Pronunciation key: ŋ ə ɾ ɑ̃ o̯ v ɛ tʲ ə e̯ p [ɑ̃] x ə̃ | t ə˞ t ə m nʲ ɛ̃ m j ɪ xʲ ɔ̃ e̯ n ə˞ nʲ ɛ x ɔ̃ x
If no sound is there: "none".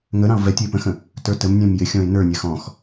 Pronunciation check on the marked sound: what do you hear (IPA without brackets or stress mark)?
ə̃